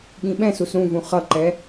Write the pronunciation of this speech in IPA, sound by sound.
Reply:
ɠ ĩ ɓ ɛ̃ s u s ɾ ũ v ũ χ ʌ ǃ ɛ

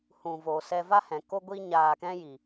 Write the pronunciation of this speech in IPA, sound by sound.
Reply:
h ũ˧ v o˧ s ɛ˧ v a˦ h ɛ̃˨ k o˦ ɡʷ i˦ ɲ aː˧ k ɛ̃˦ j i˨

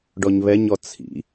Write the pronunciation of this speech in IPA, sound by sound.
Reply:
ɖ ɔ ɲ β ɛ ɲ ɔ t͡sʰ ḭ

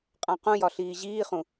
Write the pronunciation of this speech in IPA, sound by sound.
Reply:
qʼ ã q ũ j ɒ ɬ iː ʑ iː χ ũ

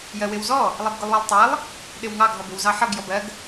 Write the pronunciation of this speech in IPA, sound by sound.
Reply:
j ɜ w ɪ w z ɔ | lˠ ɛ b ɡ ʊ lˠ w ʌ lˠ tˤ æ lˠ | ɗ ɪ w ŋ ɑ ɡ ɦ ɔ b ɪ w z ɑ ħ ʌ ɡ j ɔ b ɜ ɡ

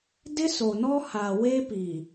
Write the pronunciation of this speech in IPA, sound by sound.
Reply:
d ɪ˦ s o˨ n ɔ˦ h a˨ w e˦ p i˨

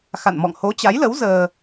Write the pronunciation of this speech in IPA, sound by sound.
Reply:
x a̰˧˨ n m ɔ̰˧˨ ŋ h o˨˦ t͡ɕ a˨˦ j l ə˨˦ w z əː˧

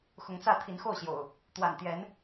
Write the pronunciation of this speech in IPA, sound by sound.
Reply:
x ʊ˨˦ ŋ t͡s ä˥˨ t̪ʰ i˨˦ n x o˥˨ ʊ̯ ɕ j o̰˨˩ ʊ̯ | t̪ w a̰˨˩ n t̪ j ɛ˨˦ n

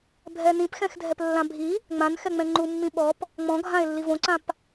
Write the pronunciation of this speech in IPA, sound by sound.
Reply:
bʱ ɛ n ĩ p x ɛ̃ x dʱ ɛ p lː ã bʱ i | ŋ͡m ã n x ɛ ŋ͡m ɛ̃ ŋ͡ǃ u mː ĩ ɓ ɔ p | ŋ͡m ɔ̃ ɡʱ ã e̯ lː i v õ ǀ ã p

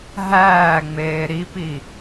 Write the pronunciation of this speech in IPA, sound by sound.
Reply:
ɦ æː ŋ͡m eː ɾ i p i

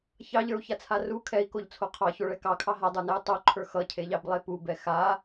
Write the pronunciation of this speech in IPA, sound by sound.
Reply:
ç ɑ ʎ ə˞ u̯ ç a t͡sʰ a r u kʰ ɛ i̯ k o ʎ t͡sʰ o qʰ ɑ ç o ɭ ɛ k ɑ kʰ ɑ ɦ a dˤ ə˞ n ɛ u̯ tˤ o ǃʰ ə˞ x ʌ cʰ e ʎ ɑ b lˠ e p u b ɛ x a

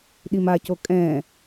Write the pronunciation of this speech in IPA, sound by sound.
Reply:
ɗ i m a c o kʼ ɛ̃

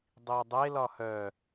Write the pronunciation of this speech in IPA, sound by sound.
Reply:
dˤ i ʊ̯ dˤ e l ɒ h œ

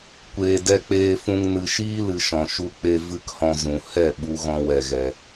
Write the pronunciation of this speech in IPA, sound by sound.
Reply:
kʷ eː˨ d ɛ˧ k͡p eː˧ f ũ˧ ŋ n ɨ˨ ʃ iː˦ l ɨ˨ ʃ ɔ̃˨ ʃ u˧ k͡p e˧ v ɨ˦ k h ɔ̃˧ z ũ˨ h ɛ˦˨ ɓ u˦ ɣ ɔ̃˦ w ɛ˧ ɣ ɛ˧

